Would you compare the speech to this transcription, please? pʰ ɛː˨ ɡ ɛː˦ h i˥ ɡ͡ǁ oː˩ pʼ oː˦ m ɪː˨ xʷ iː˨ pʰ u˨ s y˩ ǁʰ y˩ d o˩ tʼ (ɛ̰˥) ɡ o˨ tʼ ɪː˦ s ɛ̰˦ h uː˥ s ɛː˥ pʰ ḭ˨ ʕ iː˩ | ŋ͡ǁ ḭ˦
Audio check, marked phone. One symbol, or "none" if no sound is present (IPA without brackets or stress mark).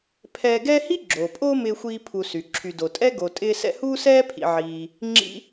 ɛ˥